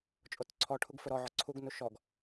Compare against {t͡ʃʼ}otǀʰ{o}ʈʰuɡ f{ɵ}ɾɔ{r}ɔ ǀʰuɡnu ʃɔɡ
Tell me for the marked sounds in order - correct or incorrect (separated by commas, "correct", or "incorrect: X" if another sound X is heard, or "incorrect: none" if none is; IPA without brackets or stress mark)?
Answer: correct, incorrect: ɔ, correct, incorrect: ʕ